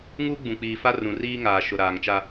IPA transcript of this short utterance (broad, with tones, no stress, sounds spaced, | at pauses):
ŋ u˦ ɡ͡b ũ˨ k͡p iː˨ f a˦ r ũ˨ r iː˦ ŋ aː˨ ʃ ʊ˨ ɾ aː˨ ŋ t͡ʃ a˦